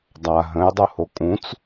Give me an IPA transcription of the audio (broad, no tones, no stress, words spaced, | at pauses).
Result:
dˤa ɦə̃jdˤuho kʼũt͡s